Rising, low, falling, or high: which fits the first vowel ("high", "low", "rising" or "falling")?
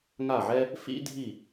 falling